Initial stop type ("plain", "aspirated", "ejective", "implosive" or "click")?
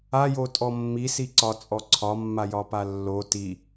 ejective